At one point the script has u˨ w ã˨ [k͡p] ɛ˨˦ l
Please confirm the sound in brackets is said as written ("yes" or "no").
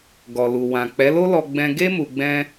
yes